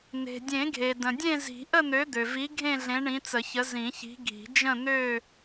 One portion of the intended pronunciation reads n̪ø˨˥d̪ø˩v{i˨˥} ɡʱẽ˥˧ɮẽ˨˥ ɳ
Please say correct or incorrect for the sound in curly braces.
correct